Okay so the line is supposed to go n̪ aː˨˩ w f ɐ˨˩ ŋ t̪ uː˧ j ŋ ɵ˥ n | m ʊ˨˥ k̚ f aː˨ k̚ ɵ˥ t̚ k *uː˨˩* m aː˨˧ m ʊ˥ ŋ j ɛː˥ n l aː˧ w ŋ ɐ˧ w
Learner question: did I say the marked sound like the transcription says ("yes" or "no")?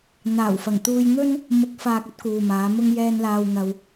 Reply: no